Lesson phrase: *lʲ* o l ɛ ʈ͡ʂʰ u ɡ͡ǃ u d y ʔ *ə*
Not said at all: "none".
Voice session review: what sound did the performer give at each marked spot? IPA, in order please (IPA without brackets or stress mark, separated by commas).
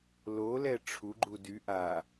l, a